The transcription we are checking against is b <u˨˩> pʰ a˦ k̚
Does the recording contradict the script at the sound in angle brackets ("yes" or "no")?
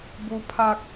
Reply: yes